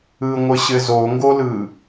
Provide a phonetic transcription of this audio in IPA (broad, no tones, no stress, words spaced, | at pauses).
ɯŋʷɘɕɘ zoŋɡolɯ